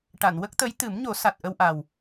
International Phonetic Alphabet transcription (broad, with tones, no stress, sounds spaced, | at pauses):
ʈ a˨˩˨ n w ə˦˥ k̚ t̪ ə˧˥ j t̪ ɨ˨˩˦ m ɲ o˨˩˦ s a˨˩ t̚ ʔ ə˧ w ʔ a˨˩ w